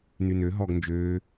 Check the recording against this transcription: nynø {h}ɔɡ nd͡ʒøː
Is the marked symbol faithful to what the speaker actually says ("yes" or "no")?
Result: no